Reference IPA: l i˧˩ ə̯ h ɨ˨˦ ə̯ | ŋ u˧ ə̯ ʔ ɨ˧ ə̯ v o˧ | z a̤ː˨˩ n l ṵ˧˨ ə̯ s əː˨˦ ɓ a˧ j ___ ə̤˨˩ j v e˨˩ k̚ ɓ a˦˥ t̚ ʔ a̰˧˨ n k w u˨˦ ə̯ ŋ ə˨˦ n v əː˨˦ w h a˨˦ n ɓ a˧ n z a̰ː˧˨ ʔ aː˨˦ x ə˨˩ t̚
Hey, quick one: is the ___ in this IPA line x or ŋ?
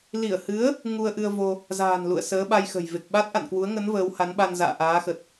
x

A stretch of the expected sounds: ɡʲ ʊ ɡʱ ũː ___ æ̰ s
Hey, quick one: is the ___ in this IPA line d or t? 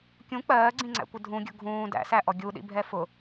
d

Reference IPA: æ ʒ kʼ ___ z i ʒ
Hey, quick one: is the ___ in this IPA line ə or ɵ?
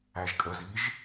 ə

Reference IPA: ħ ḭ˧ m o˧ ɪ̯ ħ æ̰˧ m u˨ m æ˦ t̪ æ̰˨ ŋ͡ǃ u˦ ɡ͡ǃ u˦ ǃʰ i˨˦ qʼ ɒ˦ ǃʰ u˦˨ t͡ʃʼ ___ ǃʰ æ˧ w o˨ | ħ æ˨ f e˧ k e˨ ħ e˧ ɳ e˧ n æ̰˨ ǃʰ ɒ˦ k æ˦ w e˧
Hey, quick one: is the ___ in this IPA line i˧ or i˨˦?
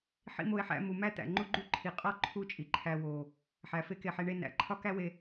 i˨˦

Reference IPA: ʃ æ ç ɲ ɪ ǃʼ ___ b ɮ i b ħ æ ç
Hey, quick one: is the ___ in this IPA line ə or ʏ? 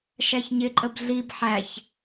ə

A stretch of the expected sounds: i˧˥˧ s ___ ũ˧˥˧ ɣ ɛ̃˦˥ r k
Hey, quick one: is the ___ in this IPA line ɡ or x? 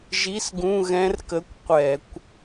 ɡ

